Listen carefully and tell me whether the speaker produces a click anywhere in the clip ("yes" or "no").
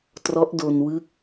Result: no